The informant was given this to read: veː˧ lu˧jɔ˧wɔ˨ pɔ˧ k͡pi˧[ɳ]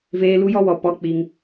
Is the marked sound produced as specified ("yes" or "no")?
no